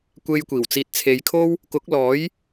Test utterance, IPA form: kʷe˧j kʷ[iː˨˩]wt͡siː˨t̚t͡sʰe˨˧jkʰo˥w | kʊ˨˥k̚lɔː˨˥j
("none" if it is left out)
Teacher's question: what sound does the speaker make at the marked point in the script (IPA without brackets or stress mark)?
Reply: iː˨˩